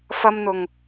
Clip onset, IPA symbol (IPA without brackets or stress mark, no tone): f